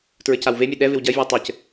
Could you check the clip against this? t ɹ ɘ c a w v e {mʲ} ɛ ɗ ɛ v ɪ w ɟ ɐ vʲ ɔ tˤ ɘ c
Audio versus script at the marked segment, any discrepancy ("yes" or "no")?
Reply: no